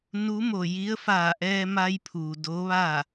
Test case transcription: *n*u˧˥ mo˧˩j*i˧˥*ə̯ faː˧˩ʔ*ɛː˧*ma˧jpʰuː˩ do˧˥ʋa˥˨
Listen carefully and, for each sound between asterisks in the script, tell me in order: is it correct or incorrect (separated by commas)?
correct, correct, correct